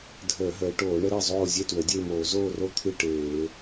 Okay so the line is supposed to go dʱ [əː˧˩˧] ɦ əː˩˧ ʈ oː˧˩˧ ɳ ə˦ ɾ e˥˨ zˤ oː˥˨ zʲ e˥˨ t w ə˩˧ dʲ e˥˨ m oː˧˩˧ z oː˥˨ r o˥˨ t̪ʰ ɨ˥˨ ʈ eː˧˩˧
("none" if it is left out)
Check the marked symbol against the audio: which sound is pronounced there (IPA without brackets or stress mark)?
əː˧˩˧